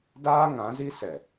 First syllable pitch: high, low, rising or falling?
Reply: high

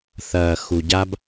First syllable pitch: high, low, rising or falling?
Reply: low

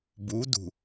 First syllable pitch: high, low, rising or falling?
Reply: rising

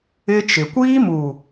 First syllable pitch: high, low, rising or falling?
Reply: high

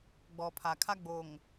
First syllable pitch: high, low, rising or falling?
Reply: low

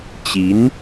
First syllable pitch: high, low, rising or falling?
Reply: rising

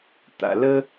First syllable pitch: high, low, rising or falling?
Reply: low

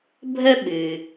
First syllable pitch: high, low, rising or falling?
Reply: high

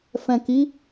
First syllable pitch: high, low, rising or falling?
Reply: low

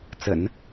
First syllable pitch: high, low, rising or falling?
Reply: low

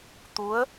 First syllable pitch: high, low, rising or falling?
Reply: rising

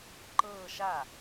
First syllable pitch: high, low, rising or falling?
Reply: falling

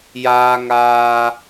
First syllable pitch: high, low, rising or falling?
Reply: high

